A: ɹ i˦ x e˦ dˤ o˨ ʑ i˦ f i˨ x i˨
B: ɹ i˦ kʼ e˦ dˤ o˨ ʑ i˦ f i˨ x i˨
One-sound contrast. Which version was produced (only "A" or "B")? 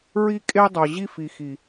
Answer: B